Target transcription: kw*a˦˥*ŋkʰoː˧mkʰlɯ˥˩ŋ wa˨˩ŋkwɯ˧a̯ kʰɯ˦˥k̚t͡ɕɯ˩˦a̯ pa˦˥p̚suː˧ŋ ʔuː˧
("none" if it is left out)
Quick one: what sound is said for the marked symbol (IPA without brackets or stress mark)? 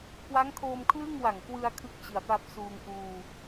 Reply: a˦˥